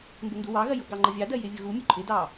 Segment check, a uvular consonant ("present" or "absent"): absent